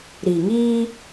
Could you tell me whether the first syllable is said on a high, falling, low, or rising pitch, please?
low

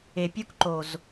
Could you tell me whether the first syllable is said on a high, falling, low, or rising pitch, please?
low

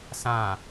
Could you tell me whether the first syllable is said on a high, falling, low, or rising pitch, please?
low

